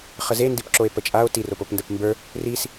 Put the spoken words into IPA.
χəze ndipǁoe̯pət͡ʃʼao̯ tiropopndəp mbə˞ | ris

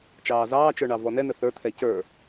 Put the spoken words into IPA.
t͡ʃɑːzɑːt͡ʃə˞ ɳɑvɔnɛnə θə˞t̪ʰɛ cə˞

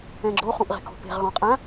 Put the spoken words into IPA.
ɛ̃ɡ͡ǁo χũʔʁe̤kɔ̤pe̤ʁ ɣɔ̃qʼã

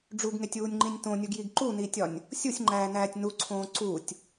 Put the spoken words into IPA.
ɖ͡ʐuɡŋetʲuːnʲŋ͡ǃĩnʲ tõnʲuɡjiɡ ǃuniːtʲɒnʲ | sʲusʲŋ͡ǃæːnæːtʲ nuǀʰõː ǀutʲ

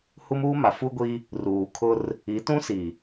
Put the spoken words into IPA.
hu˦muː˦ma˨ fu˦ɡʷi˦ | ruː˨kʰʊ˦r | i˨˦tũ˦si˨

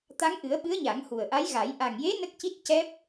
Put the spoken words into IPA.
t̪a˧˥ŋʔɨ˨˩˦ə̯ɓɨ˧˥ə̯ ɲa˨˩˦ŋhu˨˩ə̯ʔa˧˥jɣa˨˩˦j ʔa˨˩ŋje˧˥ nə˦˥k̚ci˦˥t̚ cɛ˦˥p̚

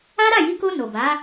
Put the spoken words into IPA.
a˦ɾa˦˨ji˧ko˧ no˨ba˨˦

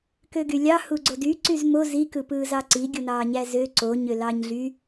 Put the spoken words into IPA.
køɡylʲɑ huɡ͡ǀody ǀyzmo zi kɯpɯːzɑǀi ɡʲunɑːɲæzø ǀo ɲølɑɲɮy

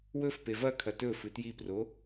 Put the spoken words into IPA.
wɵfpe vɐkʰɐ tɵfɨ tjipro

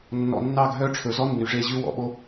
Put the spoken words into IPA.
nːɔ̰˨nːɑ˦˨ɡɦœ˦˨ ʈ͡ʂʰɵ˨zɔ˦ nːy˨ʐe˦˨ʑʉ˦ wɔ̰˨ ɓo˦

